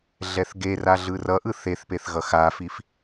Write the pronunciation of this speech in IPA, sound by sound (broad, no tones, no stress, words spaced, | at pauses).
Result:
ɮɛθɡera ɮɯrʌʔɯ θeθpeθ ɣʌxafif